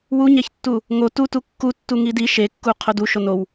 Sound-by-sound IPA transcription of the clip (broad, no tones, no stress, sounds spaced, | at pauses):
w u ɲ æ ç tː u | ŋ o t u t u kː u tː u ŋ i d i ʃ e kː u qʰ o d u ʃ o n o w